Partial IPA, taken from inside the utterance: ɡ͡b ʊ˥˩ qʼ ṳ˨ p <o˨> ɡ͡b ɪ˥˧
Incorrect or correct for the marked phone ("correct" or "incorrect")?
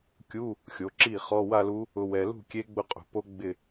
incorrect